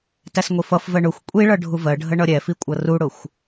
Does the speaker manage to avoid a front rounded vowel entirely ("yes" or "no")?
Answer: yes